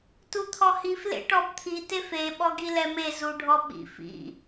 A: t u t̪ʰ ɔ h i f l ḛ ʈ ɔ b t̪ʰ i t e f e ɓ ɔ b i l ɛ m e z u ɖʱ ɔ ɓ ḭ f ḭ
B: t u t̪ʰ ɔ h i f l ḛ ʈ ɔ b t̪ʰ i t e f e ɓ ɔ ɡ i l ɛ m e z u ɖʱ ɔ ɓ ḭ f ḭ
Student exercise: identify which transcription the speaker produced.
B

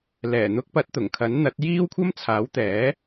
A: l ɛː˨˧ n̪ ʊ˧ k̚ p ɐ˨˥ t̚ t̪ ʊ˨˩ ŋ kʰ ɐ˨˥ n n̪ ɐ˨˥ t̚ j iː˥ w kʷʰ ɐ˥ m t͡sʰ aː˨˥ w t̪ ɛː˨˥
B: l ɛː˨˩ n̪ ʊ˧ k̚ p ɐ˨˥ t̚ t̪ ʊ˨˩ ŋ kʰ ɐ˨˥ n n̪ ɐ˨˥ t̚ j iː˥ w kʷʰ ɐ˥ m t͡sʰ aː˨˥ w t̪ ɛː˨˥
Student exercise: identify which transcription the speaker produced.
B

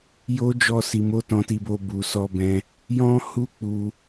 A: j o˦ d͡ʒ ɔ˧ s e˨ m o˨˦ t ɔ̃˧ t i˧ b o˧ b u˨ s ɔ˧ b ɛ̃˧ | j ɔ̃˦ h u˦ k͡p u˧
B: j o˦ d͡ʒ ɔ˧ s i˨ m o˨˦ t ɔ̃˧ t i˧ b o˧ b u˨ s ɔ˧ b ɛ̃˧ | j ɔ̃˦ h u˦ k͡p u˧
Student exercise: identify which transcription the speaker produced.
B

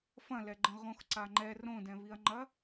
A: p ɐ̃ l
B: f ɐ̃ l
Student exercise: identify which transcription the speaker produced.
B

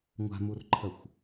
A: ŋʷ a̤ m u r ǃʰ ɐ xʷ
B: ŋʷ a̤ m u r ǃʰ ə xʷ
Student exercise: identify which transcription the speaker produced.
B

